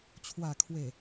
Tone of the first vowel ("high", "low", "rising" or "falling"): low